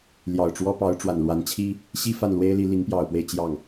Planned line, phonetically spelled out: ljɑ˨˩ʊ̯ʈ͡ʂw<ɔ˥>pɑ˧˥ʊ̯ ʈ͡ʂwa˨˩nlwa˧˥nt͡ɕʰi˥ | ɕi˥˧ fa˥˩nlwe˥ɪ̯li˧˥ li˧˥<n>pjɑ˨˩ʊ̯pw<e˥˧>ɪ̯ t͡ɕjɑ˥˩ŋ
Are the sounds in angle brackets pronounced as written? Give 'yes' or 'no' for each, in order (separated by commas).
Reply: yes, no, yes